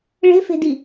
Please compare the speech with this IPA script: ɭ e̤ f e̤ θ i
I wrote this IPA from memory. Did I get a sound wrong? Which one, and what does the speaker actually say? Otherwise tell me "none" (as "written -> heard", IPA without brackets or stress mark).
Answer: θ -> d